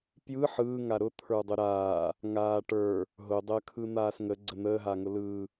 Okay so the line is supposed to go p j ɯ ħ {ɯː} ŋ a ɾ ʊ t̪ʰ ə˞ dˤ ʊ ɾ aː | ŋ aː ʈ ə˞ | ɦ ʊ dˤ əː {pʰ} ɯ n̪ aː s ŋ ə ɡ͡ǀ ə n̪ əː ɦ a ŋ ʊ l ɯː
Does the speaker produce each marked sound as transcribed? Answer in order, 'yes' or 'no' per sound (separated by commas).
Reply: yes, no